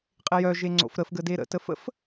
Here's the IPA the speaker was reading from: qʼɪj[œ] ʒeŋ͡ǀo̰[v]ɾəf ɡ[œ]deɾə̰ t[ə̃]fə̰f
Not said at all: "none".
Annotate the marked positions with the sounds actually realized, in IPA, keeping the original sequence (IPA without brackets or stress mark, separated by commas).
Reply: œ, f, ə, ə